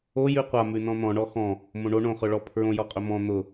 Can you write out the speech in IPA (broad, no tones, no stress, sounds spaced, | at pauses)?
o j ʉ qʷ a m ʉ n ɔ̃ n̪ ɔ̃ ɳ ɔ x ɔ̃ | m õ ɳ o ɳ õ χ ɵ ɭ ɔ pʰ ɹ õ j ɔ qʼ ɵ m ɔ̃ n̪ ʊ